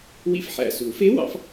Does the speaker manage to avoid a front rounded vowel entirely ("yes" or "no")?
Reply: yes